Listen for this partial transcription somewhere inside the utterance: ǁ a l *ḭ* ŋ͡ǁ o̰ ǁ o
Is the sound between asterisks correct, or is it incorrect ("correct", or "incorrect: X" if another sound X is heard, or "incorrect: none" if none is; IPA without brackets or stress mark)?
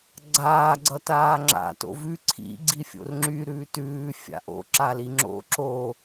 incorrect: i